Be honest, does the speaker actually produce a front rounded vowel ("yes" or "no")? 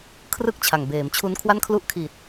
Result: no